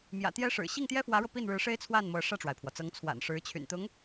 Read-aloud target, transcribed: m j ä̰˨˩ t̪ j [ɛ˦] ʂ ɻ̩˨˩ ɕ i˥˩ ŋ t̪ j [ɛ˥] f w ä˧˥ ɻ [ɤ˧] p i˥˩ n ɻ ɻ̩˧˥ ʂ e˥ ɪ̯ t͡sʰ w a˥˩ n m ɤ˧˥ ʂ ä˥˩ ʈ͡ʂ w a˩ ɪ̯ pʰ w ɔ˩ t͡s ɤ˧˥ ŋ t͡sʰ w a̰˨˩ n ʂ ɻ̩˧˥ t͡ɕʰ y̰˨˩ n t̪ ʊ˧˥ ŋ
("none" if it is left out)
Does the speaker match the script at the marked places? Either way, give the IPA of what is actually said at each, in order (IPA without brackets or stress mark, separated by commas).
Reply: ɛ˥, ɛ˥, ɤ˧